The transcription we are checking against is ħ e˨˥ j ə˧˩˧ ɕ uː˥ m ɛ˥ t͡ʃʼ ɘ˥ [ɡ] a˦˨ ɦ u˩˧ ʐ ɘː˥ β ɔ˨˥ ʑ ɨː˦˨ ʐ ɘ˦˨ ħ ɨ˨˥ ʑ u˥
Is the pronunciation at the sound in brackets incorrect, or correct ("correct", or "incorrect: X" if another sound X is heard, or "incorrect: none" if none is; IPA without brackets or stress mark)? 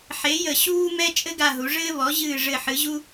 correct